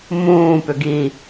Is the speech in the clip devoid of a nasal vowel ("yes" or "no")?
no